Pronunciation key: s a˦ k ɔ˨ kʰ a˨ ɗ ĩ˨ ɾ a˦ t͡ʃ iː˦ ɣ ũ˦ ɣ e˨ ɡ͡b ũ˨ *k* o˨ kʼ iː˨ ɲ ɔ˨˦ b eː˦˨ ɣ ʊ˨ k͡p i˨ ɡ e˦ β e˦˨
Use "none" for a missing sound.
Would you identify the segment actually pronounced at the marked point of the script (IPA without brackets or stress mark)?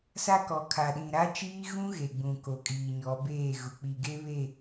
k